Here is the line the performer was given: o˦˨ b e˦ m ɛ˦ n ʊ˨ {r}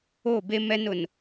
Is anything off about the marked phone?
yes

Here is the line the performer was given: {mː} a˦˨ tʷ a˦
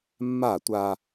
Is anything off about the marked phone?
no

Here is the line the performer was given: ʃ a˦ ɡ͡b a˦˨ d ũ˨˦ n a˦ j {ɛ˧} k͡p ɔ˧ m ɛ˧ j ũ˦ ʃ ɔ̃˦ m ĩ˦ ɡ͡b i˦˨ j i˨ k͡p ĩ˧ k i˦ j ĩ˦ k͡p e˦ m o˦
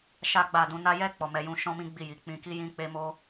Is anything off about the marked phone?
yes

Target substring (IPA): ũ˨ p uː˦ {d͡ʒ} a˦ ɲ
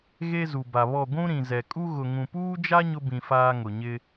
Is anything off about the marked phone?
no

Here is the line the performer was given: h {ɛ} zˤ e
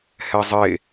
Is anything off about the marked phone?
no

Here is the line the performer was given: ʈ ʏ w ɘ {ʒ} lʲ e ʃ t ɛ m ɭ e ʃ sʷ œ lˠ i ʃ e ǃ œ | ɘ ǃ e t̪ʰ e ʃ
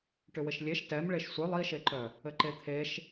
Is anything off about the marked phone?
yes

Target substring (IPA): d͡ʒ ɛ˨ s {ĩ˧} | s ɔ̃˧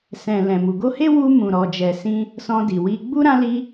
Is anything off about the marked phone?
no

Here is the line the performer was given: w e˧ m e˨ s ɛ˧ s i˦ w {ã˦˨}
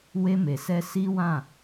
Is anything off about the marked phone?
no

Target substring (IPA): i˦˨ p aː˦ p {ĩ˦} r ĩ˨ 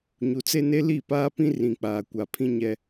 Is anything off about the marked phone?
no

